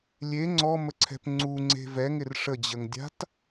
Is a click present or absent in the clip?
present